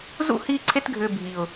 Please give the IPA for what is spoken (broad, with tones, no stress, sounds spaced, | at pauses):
z ṵ˦˨ h iː˧ ǀʰ e˧ t ɡʱ ʏː˨ bʱ i˨ ʊ̯